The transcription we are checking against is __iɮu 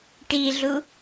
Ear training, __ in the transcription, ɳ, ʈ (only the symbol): ʈ